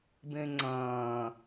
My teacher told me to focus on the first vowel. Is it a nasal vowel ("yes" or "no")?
yes